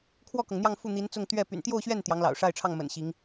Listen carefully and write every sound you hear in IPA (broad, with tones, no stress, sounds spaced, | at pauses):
kʰ w ɔ˥˩ k ɤ˩ ŋ n̪ j ɑ˥˧ ŋ f u˥˩ n̪ i˧˥ n t͡s ʊ˥˧ ŋ t̪ ɥ ɛ˥˩ p y̰˨˩ n t̪ j o˥˧ ʊ̯ ɕ ɥ ɛ˥˩ n t̪ j ɑ˧˥ ŋ l ɑ̰˨˩ ʊ̯ ʂ a˥˧ ɪ̯ ʈ͡ʂʰ ɑ˥˩ ŋ m ə̰˨˩ n ɕ i˧˥ ŋ